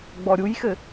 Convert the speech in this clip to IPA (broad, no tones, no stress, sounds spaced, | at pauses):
ɡ͡b ɔ ɾʲ u j x ɘ